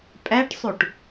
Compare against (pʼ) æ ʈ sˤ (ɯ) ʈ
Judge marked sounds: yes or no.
yes, no

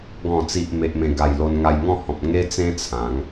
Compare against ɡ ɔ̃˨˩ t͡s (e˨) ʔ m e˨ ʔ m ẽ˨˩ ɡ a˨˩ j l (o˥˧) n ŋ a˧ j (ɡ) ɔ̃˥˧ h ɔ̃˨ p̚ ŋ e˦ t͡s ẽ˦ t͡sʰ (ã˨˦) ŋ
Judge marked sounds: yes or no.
no, no, no, yes

